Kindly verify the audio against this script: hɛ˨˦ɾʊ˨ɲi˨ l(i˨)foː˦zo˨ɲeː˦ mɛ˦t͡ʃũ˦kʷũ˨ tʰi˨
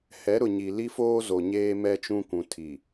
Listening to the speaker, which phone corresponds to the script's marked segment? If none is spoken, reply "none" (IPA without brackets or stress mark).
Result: i˦